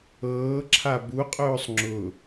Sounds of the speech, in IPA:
ɤː ǁʰ a b u qʼ ʊː sˤ ŋ͡ǁ ʊ

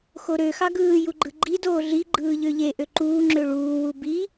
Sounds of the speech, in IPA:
x o ɾ ø x ɑ ɡ ɯː j u ɡ͡ǃ ɯ ɡ͡ǃ i d oː ɮ i ɡ͡ǃ ɯː ʎ ø ʎ e ʔ ø ǃ uː ŋ͡ǁ ø ɭ uː w u b i

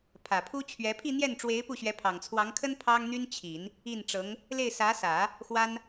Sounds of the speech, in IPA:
pʰ ä˨˩ pʰ u˥ t͡ɕʰ ɥ ɛ˧˥ pʰ i˥˧ n̪ j ɛ˥˩ n ʈ͡ʂ w e˧˥ ɪ̯ p u˥˩ ɕ ɥ ɛ˧˥ pʰ ɑ˨˩ ŋ t͡sʰ w ɑ˧˥ ŋ kʰ ə˥ n pʰ ɑ˥ ŋ n̪ y˥ n t͡ɕʰ i˨˩˦ n | i˥˩ n ʈ͡ʂ ɤ˧˥ ŋ | l e˥˩ ɪ̯ s ä˧˥ s ä˨˩˦ | x w a˥ n

